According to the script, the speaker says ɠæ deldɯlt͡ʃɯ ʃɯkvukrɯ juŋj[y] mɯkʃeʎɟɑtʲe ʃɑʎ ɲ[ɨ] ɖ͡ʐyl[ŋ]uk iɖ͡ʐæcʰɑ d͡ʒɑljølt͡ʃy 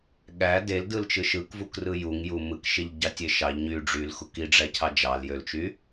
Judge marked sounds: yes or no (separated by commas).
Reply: no, no, no